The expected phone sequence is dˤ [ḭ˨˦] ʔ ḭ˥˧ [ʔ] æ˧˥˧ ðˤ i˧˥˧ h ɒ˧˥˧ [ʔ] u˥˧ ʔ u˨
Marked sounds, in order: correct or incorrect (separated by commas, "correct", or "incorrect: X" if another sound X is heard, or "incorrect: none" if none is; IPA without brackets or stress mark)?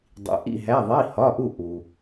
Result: correct, incorrect: ɦ, correct